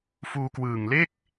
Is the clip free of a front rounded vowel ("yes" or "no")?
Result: yes